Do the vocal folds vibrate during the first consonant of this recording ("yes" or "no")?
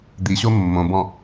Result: yes